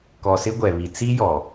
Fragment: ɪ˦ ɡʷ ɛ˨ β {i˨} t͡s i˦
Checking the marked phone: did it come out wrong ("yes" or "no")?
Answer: no